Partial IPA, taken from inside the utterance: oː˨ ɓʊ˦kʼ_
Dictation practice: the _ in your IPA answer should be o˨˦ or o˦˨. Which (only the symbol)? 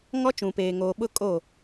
o˦˨